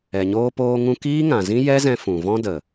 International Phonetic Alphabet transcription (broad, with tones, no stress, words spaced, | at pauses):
ɛ˨ɲoː˧poː˧ŋũ˧ kiː˦ŋã˨zĩ˦ jɛ˦zɛ̃˧ fũ˨ vɔ̃˧də˨